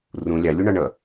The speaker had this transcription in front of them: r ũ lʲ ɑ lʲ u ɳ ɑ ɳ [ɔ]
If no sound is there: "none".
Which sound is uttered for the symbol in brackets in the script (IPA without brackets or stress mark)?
ʌ